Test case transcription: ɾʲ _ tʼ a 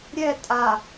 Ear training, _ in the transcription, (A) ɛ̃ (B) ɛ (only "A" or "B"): B